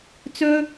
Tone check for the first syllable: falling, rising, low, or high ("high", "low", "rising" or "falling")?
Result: high